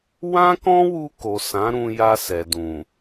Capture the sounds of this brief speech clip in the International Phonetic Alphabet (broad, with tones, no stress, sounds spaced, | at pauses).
w ã˦ k ɔ̃˦ w u˧ k o˨ s ã˨˦ ɾ ũ˧ j a˧ s ɛ˨ d ũ˨